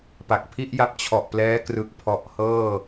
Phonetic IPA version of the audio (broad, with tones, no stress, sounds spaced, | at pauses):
p a˨˩ k̚ pʰ i˥˩ ʔ j a˦˥ p̚ t͡ɕʰ ɔ˨˩ ʔ p l ɛː˦˥ k r ɯ˦˥ k̚ pʰ ɔ˦˥ ʔ h ɤː˥˩